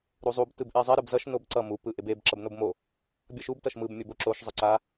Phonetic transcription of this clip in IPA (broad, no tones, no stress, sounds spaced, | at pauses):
ɾ u zˤ u b t ɯ b ʔ e zˤ ɛ ɾ ɯ b z ʌ ʃ n o b ǀ ʌ m u p ɯ ʔ e b e b ǁ ʌ b n o b m o | bʲ ʌ ʃ u b t ʌ ʃ m ɯ b mʲ o b o ǁ o ʃ zˤ ʌ ǀ a